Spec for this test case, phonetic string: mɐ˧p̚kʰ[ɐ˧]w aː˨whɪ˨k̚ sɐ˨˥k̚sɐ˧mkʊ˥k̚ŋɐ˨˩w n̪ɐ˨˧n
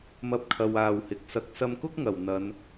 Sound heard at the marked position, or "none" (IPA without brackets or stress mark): ɐ˨